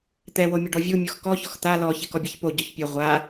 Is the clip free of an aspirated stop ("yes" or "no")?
yes